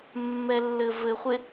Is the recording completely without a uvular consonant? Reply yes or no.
no